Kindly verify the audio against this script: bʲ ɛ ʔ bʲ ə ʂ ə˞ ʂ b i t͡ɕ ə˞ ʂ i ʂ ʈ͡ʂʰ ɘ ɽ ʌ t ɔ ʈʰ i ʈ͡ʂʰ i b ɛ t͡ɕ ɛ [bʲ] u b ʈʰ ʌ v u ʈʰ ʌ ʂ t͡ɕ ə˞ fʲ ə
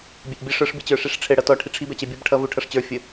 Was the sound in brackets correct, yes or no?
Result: yes